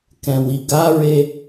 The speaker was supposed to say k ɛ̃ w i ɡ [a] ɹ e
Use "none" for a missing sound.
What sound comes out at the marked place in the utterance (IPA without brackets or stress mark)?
a